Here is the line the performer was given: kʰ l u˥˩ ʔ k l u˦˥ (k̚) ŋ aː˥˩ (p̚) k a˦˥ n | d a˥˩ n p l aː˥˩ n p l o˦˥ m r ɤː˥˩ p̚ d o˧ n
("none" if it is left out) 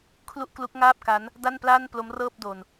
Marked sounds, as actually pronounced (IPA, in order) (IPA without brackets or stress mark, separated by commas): k̚, p̚